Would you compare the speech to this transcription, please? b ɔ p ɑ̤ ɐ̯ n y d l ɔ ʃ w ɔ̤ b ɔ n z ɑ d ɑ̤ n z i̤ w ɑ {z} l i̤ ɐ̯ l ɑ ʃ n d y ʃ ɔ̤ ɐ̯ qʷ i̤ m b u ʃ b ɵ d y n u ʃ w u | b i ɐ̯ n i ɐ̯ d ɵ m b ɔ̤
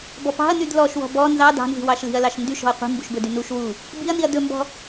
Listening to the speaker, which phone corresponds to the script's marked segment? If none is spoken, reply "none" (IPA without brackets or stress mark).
ʃ